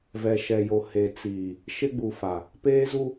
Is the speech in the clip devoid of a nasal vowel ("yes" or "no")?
yes